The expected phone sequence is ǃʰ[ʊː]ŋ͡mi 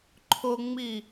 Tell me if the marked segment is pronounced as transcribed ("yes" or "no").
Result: no